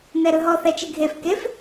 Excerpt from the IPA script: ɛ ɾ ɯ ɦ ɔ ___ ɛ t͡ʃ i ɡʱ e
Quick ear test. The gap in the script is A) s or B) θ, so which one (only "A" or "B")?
B